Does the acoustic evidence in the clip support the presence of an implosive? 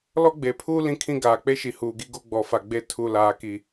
no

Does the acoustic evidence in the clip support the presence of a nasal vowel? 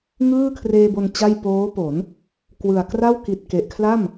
no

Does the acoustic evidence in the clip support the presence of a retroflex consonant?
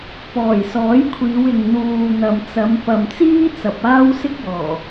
no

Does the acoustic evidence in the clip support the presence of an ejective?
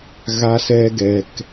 no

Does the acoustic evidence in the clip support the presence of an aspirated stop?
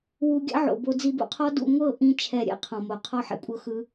yes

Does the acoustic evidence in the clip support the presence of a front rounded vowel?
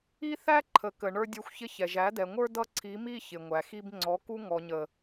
no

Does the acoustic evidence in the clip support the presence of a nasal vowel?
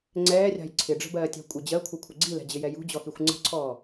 no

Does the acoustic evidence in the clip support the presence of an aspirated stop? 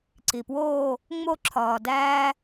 yes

